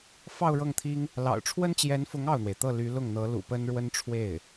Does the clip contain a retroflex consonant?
yes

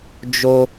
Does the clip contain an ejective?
no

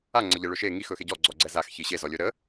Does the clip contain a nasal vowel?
no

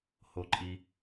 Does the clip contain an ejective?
yes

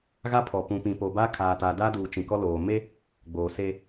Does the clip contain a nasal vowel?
yes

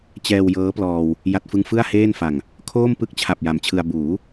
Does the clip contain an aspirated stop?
yes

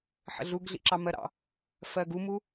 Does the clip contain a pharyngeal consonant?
yes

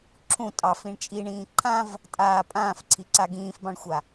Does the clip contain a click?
yes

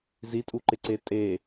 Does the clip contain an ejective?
yes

